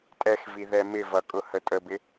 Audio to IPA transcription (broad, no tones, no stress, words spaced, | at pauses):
tʼɛxvi ðɛmɪvʌ kʼʊhətʼəbɪ